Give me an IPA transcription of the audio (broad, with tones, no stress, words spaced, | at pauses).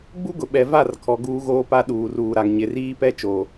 ɡ͡bu˦ɡʊ˨ɓɛ˨va˦˨r kʰɔ˨ɡuː˦ɣoː˦pa˦ ɗuː˨ruː˨ɾa˨ŋ ɲɪ˨riː˦pɛ˦ t͡ʃoː˨